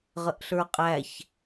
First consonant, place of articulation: uvular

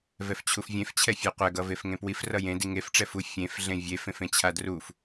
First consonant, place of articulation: labial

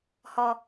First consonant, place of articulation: glottal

